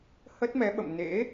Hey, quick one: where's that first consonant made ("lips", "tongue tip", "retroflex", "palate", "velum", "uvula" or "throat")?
throat